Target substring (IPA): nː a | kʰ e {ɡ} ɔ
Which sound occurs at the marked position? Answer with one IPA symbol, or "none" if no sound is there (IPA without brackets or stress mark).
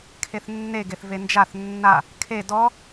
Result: d